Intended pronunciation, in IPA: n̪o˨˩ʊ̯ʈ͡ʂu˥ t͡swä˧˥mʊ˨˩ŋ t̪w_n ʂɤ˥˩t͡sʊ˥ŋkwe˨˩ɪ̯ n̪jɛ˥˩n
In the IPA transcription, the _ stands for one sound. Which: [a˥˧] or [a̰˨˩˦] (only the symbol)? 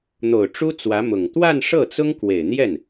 a˥˧